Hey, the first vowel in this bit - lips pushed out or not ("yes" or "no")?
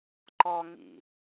yes